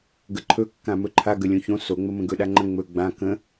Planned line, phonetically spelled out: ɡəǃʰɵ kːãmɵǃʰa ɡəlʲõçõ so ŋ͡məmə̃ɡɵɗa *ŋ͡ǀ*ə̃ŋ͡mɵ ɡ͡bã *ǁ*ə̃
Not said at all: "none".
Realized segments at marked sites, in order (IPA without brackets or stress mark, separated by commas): ŋ͡ǃ, k